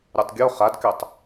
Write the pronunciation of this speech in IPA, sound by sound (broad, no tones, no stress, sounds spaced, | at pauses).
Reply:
ɾʲ ɔ tˤ ɡʲ o χ a d k ɛ tˤ